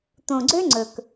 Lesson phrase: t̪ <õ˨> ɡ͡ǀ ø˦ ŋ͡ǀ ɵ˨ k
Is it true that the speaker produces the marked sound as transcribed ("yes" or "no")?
yes